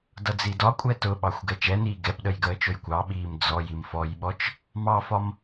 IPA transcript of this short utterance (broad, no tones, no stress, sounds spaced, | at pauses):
d ʌ d͡z i d ɒ kʷʼ ɛ t ʊ ɓ ɑ xʷ ɡ ɛ t͡ʃ ɛ n iː ɡ ɛ p ɗ ə j ɡ əː t͡ʃ ʊ j kʷ ɑ ɓ iː m d͡z ɔ j i m f ɔ j ɓ ɔ t͡ʃ | m ɑ f ɒ m